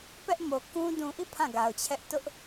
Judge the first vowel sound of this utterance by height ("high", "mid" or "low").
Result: mid